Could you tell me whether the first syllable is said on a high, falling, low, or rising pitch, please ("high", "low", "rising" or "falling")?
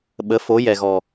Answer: rising